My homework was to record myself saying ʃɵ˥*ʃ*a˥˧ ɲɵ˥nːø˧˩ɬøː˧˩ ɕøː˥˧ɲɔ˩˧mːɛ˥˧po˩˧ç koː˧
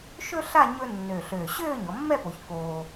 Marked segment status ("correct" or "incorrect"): incorrect